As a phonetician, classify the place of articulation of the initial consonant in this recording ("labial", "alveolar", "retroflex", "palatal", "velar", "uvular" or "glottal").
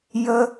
palatal